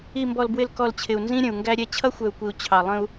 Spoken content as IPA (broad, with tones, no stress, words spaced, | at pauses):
i˨mbɔ˨lbwɪ˨l kɔ˨lt͡ɕʰɪ˨u̯ nzĩ˦ɾʲə̃˨u̯ŋɡæ˦ɾʲɛ˦ t͡ɕʰʌ˦xʷɛ˨u̯kʷi˨u̯ t͡ɕʰɑ˨lˠə̃˦u̯